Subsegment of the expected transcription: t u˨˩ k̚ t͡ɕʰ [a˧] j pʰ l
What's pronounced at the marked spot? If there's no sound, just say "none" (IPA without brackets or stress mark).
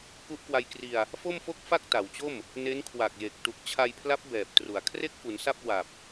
a˧